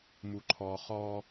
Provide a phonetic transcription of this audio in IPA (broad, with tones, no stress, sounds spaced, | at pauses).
m u˨ ǃʰ ɔː˨ χ ɔː˦